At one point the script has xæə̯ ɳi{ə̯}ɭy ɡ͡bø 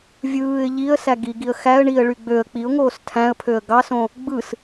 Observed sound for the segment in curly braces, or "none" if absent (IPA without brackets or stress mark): ə̯